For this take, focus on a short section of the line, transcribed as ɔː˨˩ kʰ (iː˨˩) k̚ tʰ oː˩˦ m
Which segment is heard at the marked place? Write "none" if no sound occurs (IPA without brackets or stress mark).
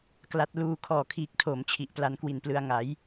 iː˨˩